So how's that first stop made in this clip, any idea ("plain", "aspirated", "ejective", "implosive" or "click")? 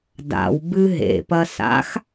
plain